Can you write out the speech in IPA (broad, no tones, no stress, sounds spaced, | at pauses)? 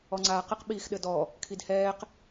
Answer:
ɔ ŋ͡ǀ aː q ɘ q ɓ iː x ɗ ɘ d ɔ | kʰ i d h ɛː q